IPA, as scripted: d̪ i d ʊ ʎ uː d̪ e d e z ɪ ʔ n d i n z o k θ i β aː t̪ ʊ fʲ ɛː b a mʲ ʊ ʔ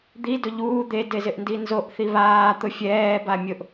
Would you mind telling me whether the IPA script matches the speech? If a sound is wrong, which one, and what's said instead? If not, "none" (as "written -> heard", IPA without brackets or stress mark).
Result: k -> ʔ